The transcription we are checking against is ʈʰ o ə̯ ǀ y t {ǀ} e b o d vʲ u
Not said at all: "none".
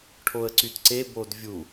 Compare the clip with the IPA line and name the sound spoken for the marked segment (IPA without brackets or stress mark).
ǀ